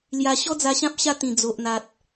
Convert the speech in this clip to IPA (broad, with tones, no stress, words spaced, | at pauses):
lja˧ ɕɔ˦d͡za˧ɕã˦p̚ ɕa˧ t̪ĩ˨˩ d͡zo˨ʔn̪a˨t̚